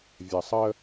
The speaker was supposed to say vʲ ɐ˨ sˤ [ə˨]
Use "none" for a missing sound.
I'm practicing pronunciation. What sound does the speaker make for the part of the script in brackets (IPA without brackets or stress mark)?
ə˦